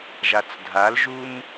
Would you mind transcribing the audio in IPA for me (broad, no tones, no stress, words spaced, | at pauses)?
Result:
ʒat͡sdʱalʒum